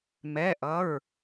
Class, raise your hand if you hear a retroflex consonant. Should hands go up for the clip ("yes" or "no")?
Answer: no